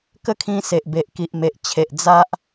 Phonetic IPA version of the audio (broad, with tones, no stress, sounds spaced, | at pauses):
k ə˥˧ kʰ ĩ˧ s e˨ ʔ b e˨ ʔ k i˨ ʔ m e˨ ʔ t͡ɕʰ e˨ ʔ d͡z a˦ ʔ